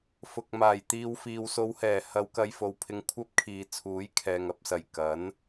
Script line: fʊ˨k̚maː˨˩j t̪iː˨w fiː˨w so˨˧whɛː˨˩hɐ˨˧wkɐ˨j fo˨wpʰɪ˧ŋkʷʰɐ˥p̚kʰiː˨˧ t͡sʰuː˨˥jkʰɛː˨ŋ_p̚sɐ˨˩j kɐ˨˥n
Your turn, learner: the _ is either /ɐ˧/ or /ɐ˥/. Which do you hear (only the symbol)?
ɐ˧